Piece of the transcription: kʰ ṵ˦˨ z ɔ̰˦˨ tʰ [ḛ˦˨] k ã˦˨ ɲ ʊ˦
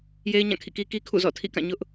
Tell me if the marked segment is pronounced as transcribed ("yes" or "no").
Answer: no